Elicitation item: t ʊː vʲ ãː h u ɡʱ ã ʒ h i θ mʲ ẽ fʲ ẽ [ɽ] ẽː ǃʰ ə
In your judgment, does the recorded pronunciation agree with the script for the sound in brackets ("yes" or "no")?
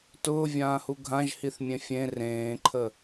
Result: no